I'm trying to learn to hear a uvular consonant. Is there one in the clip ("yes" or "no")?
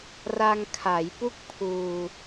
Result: no